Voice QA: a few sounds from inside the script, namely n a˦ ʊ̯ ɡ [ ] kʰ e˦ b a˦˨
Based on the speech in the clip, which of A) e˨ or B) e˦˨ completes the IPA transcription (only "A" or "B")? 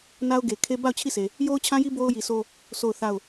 A